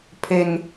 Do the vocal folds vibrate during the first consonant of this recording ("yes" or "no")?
no